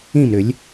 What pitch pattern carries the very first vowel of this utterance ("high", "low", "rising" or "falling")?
falling